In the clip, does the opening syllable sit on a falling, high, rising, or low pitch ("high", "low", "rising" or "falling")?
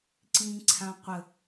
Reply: high